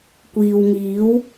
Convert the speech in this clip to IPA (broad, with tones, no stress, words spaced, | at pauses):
kʷiː˨wŋiː˨˥w